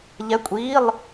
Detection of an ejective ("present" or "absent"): present